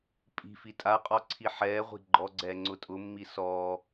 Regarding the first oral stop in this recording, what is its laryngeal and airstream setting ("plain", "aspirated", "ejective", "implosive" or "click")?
ejective